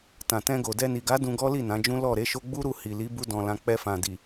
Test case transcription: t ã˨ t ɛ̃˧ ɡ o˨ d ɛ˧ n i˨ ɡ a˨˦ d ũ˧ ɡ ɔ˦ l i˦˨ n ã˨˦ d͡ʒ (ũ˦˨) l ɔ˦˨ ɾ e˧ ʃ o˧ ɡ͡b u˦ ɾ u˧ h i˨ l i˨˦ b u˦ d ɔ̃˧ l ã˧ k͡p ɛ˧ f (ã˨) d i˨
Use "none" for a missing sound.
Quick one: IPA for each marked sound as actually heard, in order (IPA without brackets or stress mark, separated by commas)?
ũ˦, ã˨